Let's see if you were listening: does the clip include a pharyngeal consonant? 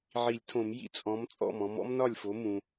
yes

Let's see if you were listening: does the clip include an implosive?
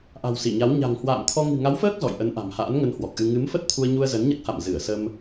no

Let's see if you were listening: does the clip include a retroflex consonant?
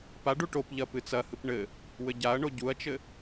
yes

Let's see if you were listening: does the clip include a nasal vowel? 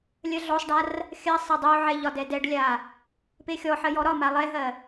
no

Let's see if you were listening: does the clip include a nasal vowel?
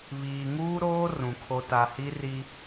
yes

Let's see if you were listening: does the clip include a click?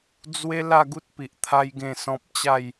no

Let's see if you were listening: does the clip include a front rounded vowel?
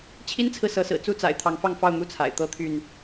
yes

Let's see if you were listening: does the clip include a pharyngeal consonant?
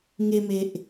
no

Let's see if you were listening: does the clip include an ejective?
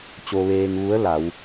no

